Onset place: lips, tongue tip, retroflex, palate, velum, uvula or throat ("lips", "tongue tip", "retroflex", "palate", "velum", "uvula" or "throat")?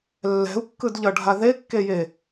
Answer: tongue tip